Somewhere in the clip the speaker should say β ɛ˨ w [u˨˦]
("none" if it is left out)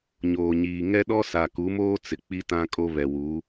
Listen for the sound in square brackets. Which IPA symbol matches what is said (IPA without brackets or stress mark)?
u˨˦